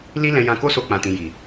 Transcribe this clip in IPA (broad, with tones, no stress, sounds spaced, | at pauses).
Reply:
l i˦ l ɛ̃˧ j ã˧ k o˦ s o˧ k͡p ã˨ t ĩ˨ j i˨